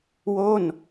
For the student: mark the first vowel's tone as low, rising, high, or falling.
falling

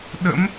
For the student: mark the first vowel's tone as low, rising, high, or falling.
rising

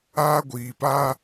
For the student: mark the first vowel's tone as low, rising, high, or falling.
high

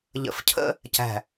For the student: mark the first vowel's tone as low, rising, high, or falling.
low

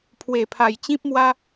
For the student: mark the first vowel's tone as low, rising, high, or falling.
low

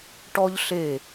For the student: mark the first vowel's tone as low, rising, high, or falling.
high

